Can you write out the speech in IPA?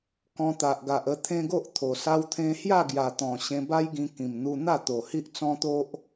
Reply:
k ɔ̃˧ t̪ a˨ ʔ ɡ a˨ ʔ ə˧ t̪ʰ ẽ˦ ɡ o˦ ʔ t̪ʰ o˨˩ s a˧ w t̪ʰ ẽ˧ h j a˥˧ ɡ j a˨˩ t̪ ɔ̃˨˩ ɕ ẽ˧ b a˦ j ɡ ĩ˧ k ĩ˨˩ m n̪ u˧ n̪ a˥˧ t̪ o˨˩ h i˦ ʔ t͡s ɔ̃˦ t̪ o˦ ʔ

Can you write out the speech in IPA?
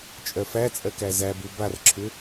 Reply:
t͡ʃʼ ɜ f æ t͡sʼ ɜ k æ z æ b u b a r ǁʰ ʏ

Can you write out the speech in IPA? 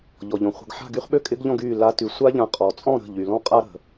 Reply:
ʎ ɔ˩ ʎ ɔ̃˩ χʷ ə̤˩˧˩ ɡ ħ a̤˥˨ ɡ y˧˥ χ ɓ ø˥ kʼ ɪ˧˥ ɡ ʎ ɔ̃˥˨ ɡ yː˥˨ l a˧˥ t y˩˧˩ sʷ a˥ ʎ ã˧ qʼ ɔ˩ t͡sʼ ɔ̃˥˨ ɾ ə̤˩˧˩ ʎ y˩ l ɔ̃˥ qʼ a˥ ɾ ə̤˩

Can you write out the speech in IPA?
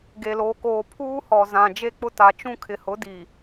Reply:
ɡ e˨ l oː˨ k oː˨ pʰ uː˦ h ɔ˨ z ã˨ d͡ʒ e˦ k͡p ʊ˦ t a˨ t͡ʃ ũ˦ kʰ ɪ˨ h ʊ˨˦ d i˨

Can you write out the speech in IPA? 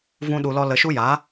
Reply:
v ũ˦ ɗ u˧ l ɔ˦ l ə˧ ʃ u˦ j a˨˦

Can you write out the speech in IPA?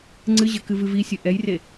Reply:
ŋ͡ǀ ɨ ʑ ɘ k ɨ v ɨ v i sʲ ɨ ʔ ɛ j r e

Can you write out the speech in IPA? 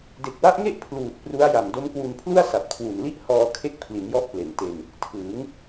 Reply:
d e˨˩ k̚ w a˦˥ ʔ ŋ e˥˩ ʔ pʰ l uː˨˩ t̚ p r u˦˥ a̯ j a˨˩ m d o˦˥ m k w u˧ n pʰ l u˥˩ a̯ s a˨˩ p̚ kʰ w u˨˩ n l i˥˩ ʔ h ɔː˧ kʰ e˦˥ k̚ pʰ l i˩˦ n j ɔ˦˥ ʔ p l e˨˩ n t e˧ n | tʰ ɯː˩˦ ŋ

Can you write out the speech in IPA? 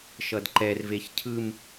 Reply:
ʃ ʌ d ǃ ɛ r v e ç cʰ ɯ m

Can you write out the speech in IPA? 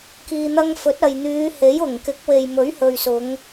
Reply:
k iː˨ n̪ ɐ˧ ŋ f ɵ˨˥ t̚ ɐ˨ j n̪ yː˨˧ h e˨˥ j ʊ˨˩ ŋ k ɪ˨˥ k̚ w e˨ j m ɵ˨˥ ɥ h ɵ˨ ɥ s ʊ˨˧ ŋ

